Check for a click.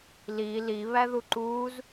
present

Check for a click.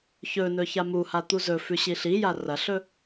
absent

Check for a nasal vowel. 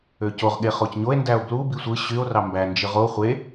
absent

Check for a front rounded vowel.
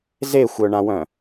present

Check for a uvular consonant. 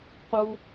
present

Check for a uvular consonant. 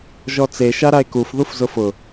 absent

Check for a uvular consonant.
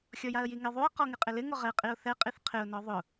present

